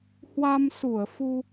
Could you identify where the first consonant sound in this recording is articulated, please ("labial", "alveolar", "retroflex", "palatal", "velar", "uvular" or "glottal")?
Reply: glottal